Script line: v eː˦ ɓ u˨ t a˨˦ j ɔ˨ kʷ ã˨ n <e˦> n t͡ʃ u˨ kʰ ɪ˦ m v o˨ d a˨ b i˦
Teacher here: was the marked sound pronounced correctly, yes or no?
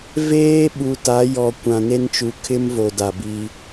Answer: yes